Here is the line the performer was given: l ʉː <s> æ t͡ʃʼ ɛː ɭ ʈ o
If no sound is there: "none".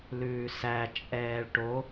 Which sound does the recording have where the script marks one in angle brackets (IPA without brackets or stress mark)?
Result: s